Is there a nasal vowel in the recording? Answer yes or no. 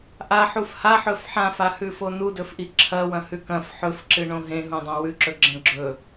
yes